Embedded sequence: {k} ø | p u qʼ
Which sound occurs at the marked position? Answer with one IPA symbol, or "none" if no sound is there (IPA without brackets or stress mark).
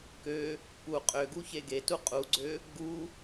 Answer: k